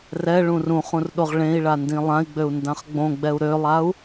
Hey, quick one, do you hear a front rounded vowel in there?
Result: yes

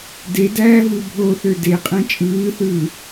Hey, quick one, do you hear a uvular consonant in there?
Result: yes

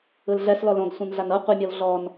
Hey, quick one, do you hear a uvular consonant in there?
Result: yes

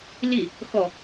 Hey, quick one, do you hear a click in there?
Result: no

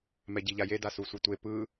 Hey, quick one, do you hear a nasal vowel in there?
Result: no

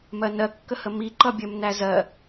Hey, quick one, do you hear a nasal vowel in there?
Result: no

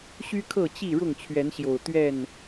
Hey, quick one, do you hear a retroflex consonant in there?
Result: yes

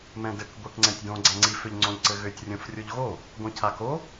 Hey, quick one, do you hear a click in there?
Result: yes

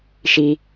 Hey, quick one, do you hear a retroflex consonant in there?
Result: no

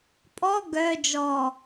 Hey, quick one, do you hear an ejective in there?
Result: yes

